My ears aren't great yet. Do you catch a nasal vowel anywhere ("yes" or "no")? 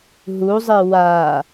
no